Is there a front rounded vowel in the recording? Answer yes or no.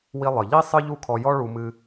no